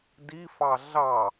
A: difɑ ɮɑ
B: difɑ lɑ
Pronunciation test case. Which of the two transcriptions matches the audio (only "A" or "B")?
A